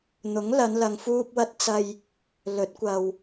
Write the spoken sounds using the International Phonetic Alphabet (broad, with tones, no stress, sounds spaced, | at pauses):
n̪ ʊ˨˥ ŋ l ɐ˨˧ n l ɐ˨ ŋ f uː˧ p̚ w ɐ˧ t̚ t͡s ɐ˧ j | l ɵ˨˥ t̚ kʷ ɐ˨ w